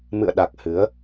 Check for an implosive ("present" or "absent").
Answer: present